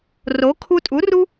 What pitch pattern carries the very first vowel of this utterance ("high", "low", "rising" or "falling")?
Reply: rising